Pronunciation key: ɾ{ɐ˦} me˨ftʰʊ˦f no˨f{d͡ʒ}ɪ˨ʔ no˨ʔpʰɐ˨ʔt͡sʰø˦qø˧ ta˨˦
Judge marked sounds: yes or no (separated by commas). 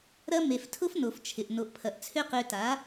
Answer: yes, no